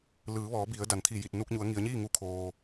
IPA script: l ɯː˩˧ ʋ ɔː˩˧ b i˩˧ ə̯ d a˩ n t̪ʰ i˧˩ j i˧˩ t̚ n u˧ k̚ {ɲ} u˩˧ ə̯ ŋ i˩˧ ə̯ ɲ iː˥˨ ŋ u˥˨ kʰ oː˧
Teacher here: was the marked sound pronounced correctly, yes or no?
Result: yes